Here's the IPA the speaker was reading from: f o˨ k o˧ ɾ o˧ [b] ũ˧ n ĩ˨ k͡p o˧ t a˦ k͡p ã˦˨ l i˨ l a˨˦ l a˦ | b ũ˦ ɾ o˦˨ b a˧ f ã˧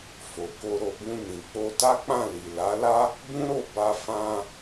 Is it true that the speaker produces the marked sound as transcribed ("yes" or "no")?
yes